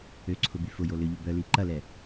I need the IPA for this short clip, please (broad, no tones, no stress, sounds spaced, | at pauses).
ø ǀʰ ʊ b y f ʊ j o l ʏ ʎ ʊ b œ l i ǃ ɐ l ɛ